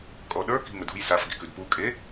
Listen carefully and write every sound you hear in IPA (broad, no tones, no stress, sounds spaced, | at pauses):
kʼ ɔ ɗ ə˞ k i̤ ŋ ɵ d ṳ j s a f ɡ i̤ k ʉ d p u kʼ e